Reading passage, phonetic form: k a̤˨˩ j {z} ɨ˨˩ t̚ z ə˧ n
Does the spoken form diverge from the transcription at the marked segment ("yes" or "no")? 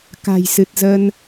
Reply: yes